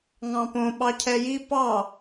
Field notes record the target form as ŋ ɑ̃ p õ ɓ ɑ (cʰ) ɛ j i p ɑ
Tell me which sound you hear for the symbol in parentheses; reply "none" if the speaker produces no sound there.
cʰ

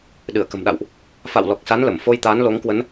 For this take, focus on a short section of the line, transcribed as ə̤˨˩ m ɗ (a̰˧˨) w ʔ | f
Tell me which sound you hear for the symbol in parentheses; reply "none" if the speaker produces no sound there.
a̰˧˨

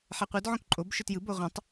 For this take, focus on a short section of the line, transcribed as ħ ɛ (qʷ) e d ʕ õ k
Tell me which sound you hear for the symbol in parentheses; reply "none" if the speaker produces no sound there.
qʷ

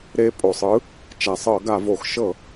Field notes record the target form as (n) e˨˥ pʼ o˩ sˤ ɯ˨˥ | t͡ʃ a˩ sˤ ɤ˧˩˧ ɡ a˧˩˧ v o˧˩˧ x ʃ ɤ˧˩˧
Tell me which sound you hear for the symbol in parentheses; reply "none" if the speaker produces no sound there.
ɾ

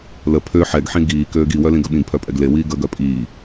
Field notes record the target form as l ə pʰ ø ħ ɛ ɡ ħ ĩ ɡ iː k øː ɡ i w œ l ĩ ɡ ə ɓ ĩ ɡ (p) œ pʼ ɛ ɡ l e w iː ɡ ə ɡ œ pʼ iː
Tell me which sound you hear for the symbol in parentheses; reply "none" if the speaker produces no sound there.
pʰ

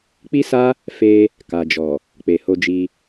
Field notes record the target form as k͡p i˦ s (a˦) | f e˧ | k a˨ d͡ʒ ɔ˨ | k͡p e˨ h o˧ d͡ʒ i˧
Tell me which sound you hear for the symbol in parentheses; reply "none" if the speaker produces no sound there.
a˦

